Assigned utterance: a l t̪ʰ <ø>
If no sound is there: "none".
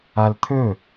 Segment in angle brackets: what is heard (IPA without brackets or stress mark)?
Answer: ɵ